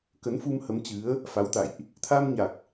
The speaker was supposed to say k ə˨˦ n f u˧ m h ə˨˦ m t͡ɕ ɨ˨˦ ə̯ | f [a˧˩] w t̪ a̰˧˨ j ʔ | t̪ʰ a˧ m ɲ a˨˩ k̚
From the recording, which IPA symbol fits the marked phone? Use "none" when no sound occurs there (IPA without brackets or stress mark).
a˨˦